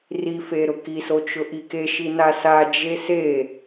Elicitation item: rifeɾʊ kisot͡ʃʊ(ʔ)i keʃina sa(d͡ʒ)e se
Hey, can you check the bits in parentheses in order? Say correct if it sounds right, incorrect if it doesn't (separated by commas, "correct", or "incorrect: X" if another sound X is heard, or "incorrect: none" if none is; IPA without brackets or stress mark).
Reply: correct, correct